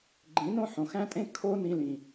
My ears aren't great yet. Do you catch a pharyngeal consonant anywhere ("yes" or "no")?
yes